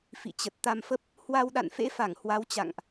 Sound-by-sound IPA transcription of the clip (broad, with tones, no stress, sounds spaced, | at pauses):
f ḭ˧˨ t͡ɕ ə˨˩ t̚ t̪ a˧ m f ə˦˥ p̚ | h w a˧ w ɗ a̰˧˨ n f ḛ˧˥ f a˧˩ ŋ h w a˨˦ w t͡ɕ a̰˧˨ ŋ ʔ